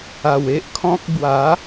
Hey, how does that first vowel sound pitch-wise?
low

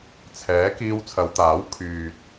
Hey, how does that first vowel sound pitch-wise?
rising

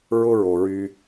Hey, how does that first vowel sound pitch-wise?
high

